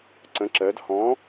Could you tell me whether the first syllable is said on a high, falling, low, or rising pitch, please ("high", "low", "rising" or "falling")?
rising